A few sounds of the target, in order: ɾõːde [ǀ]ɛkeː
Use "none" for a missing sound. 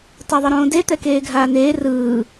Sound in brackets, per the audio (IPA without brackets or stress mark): t̪